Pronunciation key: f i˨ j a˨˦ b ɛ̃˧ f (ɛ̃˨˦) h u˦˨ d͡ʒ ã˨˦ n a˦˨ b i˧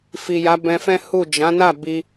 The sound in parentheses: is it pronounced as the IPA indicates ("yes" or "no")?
no